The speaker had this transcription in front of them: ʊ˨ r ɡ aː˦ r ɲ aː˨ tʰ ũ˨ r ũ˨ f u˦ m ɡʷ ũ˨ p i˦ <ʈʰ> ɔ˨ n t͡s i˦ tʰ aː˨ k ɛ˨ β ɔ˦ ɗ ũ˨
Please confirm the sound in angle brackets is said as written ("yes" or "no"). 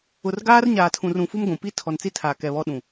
no